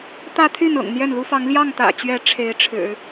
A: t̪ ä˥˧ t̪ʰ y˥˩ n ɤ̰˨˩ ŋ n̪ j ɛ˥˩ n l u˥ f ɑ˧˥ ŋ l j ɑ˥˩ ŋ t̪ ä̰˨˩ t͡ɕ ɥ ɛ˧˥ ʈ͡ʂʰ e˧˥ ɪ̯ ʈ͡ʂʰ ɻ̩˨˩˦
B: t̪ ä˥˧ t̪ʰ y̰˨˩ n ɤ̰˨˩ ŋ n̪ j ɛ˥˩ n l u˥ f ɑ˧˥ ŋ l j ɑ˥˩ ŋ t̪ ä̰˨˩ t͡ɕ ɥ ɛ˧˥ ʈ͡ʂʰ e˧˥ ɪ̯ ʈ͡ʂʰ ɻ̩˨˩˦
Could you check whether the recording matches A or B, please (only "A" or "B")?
A